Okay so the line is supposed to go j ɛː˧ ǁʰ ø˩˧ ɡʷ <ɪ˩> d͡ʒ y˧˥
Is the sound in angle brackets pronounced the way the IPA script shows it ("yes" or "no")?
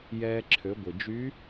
yes